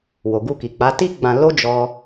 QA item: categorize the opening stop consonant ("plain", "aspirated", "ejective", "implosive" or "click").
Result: plain